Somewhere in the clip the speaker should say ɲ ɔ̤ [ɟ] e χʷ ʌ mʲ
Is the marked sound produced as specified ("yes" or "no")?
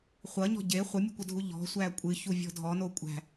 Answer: yes